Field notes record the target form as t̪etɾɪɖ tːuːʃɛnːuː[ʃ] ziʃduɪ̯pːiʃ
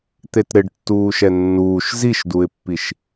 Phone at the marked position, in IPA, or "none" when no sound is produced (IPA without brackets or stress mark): ʃ